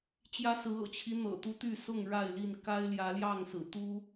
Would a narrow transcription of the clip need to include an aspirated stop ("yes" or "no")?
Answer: yes